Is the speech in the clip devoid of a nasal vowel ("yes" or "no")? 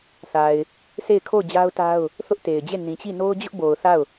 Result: no